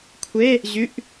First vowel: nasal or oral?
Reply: oral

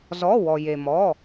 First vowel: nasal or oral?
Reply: oral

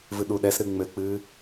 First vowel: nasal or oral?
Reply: oral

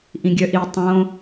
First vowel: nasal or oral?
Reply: nasal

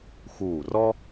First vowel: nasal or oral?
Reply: oral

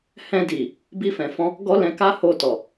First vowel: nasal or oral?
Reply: nasal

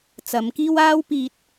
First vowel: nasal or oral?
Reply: oral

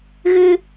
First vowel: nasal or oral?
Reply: oral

